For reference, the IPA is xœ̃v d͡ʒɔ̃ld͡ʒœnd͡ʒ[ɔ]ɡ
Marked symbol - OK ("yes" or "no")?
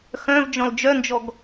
yes